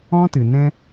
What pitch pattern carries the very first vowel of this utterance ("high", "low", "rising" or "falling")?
high